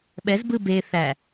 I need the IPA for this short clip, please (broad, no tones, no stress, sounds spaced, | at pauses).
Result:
ɓ ɛ z b ɯ b e θ æ